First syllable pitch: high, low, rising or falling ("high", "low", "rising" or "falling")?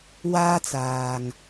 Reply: high